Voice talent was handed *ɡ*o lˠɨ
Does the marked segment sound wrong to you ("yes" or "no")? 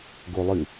no